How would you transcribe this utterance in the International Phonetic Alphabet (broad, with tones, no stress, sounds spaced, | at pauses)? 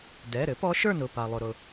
d ɛ˩˧˩ ɾ ɘ˧˥ p ɔ˧˥ ʃ ə˞˥˨ n ʊ˩˧˩ p a˩ lˠ ʊ˩ ɾ ʊ˩